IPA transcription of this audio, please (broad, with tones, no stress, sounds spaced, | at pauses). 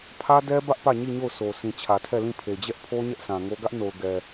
pʰ ä˦ d ɛ˦ b ä˦ ʔ p ä˦˨ ɲ i˦˨ ɲ o˦˨ ʊ̯ s o˨ sʰ ĩ˨ t͡ɕʰ ä˨ tʰ ɛ˦˨ l ĩ˦˨ pʰ e˨ d͡ʑ ɛ˦ ʔ pʰ o˦ ɲ ɛ˦ ʔ s ã˨ ŋ o˦ ɡ ä˦ ʔ n o˨ ʊ̯ ɡ ɛ˨